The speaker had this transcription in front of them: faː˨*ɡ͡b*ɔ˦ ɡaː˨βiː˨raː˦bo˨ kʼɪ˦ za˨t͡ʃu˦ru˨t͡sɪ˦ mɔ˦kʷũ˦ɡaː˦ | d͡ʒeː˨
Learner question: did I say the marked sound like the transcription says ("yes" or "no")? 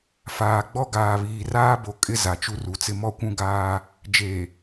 yes